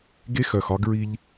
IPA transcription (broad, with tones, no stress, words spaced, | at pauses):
ɡe˦xœ˨xɒ˦ɡ ɹi˦ʎ